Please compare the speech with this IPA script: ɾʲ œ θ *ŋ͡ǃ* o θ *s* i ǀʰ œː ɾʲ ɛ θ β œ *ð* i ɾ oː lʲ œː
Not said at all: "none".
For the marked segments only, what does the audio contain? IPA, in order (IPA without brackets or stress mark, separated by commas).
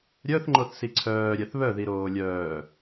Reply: ŋ͡ǃ, s, ð